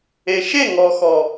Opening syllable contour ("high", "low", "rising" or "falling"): low